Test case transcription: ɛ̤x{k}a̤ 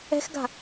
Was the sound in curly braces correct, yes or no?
no